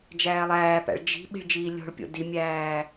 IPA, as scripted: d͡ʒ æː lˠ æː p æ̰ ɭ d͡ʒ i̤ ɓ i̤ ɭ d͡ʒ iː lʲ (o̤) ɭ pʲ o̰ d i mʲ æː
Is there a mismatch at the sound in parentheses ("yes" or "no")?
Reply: no